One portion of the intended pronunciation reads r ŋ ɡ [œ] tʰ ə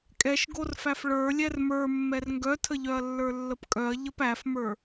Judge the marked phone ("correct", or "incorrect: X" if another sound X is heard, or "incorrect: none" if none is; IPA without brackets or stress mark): correct